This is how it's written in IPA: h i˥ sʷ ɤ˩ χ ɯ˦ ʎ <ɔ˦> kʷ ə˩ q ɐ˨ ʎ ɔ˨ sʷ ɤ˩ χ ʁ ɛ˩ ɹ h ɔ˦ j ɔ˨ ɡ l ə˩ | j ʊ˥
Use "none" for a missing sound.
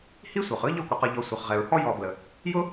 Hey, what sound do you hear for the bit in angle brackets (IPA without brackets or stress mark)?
ɔ˦